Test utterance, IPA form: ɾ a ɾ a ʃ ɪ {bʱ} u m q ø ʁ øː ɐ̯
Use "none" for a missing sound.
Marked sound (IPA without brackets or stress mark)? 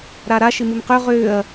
m